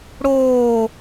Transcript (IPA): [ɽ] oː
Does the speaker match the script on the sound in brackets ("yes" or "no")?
yes